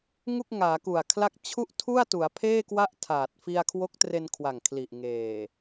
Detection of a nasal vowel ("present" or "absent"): absent